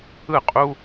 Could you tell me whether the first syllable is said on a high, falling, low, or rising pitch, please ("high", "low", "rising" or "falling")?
falling